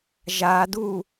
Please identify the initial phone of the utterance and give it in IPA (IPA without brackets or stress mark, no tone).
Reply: ʒ